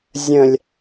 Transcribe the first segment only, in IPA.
zʲ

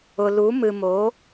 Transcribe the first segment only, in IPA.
ʊ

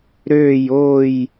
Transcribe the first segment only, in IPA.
ɾ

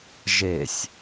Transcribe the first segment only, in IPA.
ʒ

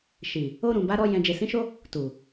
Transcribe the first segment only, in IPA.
ʃ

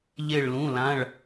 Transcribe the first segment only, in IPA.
ʎ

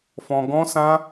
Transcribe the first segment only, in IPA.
f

